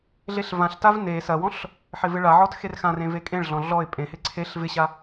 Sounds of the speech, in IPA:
ɮeɬvãɬtav ne sɐwɔ̃ɬ | ħɪvɪɭaʕɔt xerxãrẽ vekʼẽɭɮɔ̃ ɮɔɪ̯ pʼẽhɪ ǀʰeɬ vɪɕa

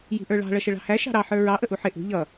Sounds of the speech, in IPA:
ji̤ʔə˞ɭɑ̤ ɭʌʃəɭɑ̤hæ ʃɑ̤ɾɑ ħə˞ɹɑ ʔəʔuħɪ ʔṳ ʎʌ

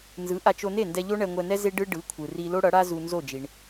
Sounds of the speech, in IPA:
nzɯ˩˥ʔa˧t͡ʃ o˧ne˥˩ndɛ˧ ʎo˥ɳɛ˧ŋʷɛ˧nɛ˥ ze˥ɖɯ˥ ɖɯ˩˥kʷʰɯ˩ri˧ lo˥ɽʌ˩˥ɽa˥ zu˧nzo˥˩ d͡ʒi˩ɳ

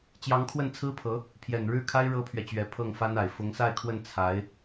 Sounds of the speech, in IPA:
t͡ɕjɑ˧˥ŋkʰwə˥˩nt͡sʰɹ̩˥pʰɤ˧˥ | pʰjɛ˨˩nɻɻ̩˥˩kʰa˥ɪ̯ ɻɤ˥pʰɥɛ˨t͡ɕɥɛ˧˥ pʰɤ˥˩ŋfa˥na˨˩ɪ̯ fʊ˧˥ŋsa˥˧ɪ̯kʰwə˥˩n t͡sʰa˧˥ɪ̯

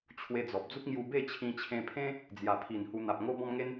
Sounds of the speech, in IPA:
t͡ɕʰwe˧d͡zɔ˨p̚ d͡zu˦k̚ ŋju˧ be˥˧t͡ɕʰĩ˧t͡ɕʰẽ˧pʰẽ˦ | d͡zja˨˩pʰi˨˩n hu˧n̪a˨p̚ ŋo˧ bɔ̃˧mŋe˧n

